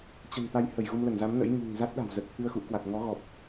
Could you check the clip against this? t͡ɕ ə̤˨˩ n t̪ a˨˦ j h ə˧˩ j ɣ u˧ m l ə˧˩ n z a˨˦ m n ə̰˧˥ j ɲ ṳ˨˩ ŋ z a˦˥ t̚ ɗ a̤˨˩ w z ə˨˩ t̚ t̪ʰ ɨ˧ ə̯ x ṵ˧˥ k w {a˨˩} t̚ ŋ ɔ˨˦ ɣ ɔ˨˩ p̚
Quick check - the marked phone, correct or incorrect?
correct